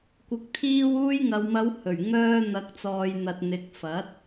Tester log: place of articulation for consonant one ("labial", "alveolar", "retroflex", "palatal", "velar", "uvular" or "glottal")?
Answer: velar